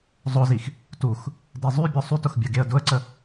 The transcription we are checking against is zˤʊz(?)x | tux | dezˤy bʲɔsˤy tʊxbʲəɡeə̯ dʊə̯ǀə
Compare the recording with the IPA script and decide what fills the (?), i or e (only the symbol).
i